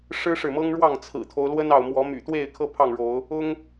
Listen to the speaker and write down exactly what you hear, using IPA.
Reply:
ʂ ɻ̩˦ ʂ ɻ̩˨ m ɤ˦ ŋ ɻ w ɑ˥˨ ŋ t͡sʰ ɹ̩˨˩ t̪ʰ o˦ ʊ̯ l w ə˦ n ɑ˨ ʊ̯ m w ɔ˨˦ m y̰˨˩ t̪ w e˥˨ ɪ̯ kʰ ɤ˦ pʰ ɑ˥˨ ŋ ɻ o˨˦ ʊ̯ | ʊ˦ ŋ

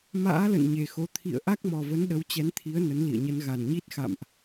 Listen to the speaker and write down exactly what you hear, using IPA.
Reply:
m a̰ː˧˥ l ə̰˧˨ n ɲ e˨˩ x o˨˦ t̪ʰ ḭ˧˨ ə̯ ʔ a˦˥ k̚ m ɔ˨˩ v ə˨˦ n ɗ ə˨˦ w t͡ɕ ɛ˨˦ n t̪ʰ i˨˦ ə̯ n ə˨˦ n l ḭ˧˨ ə̯ ɲ ə˨˦ n ɣ a˨˩ n ɲ i˦˥ t̚ x a̰˧˨ m ʔ

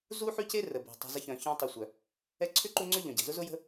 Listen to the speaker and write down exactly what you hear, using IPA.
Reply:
z u˦ ħ y˦ c e˦ r ə˨ b ɛ̤˨ tˤ ɛ̤˦ z ə˥ ç œ̃˨ ç œ̃˦ tˤ ʊ˨ sʷ œ˩ | ɛ˦ ǀʰ ʏ˥ ǃ u˦ ŋ͡ǀ ʏ˥ ʎ œ̃˩ ɟ ɛ̤˩ z ʊ˥ z ʊ˥ j ə̤˥

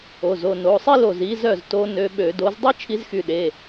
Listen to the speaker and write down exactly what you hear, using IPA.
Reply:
o˩˧˩ z o˧˩ n o˩˧˩ sˤ i˥ l o˧˩ z i˧˥ z œ˥˨ z t o˧˥ n ø˧˥ ɓ ø˧˩˧ d o˧˥ z dˤ i˥ t͡ʃʰ i˧˥ z x y˧˩ ɗ e˩˧˩

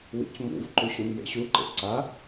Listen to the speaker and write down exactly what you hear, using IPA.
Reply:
w ḭ c m ṵ v ǃ u ɕ ũ m j ḛ ɕ u ǃ ḛ ǀ a

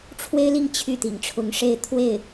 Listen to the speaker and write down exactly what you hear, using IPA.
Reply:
ʈ͡ʂʰ w e˥ ɪ̯ l i˥˧ ŋ t͡ɕʰ y˥˩ t̪ ḭ˨˩ ŋ ʈ͡ʂʰ ʊ˧˥ ŋ ʂ e˥˧ ɪ̯ t̪ʰ w e˥˩ ɪ̯

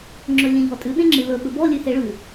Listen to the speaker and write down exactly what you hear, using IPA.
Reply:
ŋ͡ǁ ɵ lʲ ẽ ʎ ɔ tʼ ʉ ɗ ẽ ŋ͡ǁ ɨ l ɵ ɓ ɵ b ɔ lʲ ʉ h e ɭ ʉ

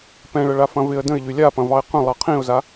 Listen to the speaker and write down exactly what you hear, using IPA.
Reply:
p ɛ̃ ɭ ə ɭ a f ɐ̃ v ɪ ə̯ d ə̃ ɪ̯ ʎ y lʲ a p ɐ̃ v ɑ ɪ̯ q ə̃ lˠ ɑ qʰ ĩ ʊ̯ z a

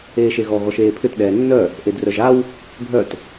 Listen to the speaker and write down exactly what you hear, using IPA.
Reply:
eː ʃ e ɣ ɔ ɣ ɔ ʃ eː pʰ ʏ t ɗ ɛː nː œ | ʔ e d r œ ʒ a w | bʱ œ t

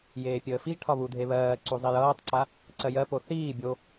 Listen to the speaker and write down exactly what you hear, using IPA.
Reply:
j eː pʲ əː f i ʒ ʈʰ ɒ β u dʱ e β ɜː ǀ u zˤ i j ʌː tˤ ǀ a | ǀ ɜ j ɜ p o θ iː bʲ o

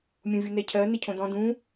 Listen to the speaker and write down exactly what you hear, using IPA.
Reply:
mʲ ũ vʲ u n ɛ cʰ ɜ n e cʰ õ d ɔ̃ d ũ

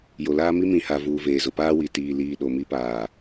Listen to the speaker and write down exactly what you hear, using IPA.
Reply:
j o˨ l aː˦ m i˦ m ĩ˨ h a˨ v uː˨ v eː˨ z ʊ˨ p aː˦ w i˨ t iː˨ l iː˨ ɗ o˨ m i˦ p aː˨

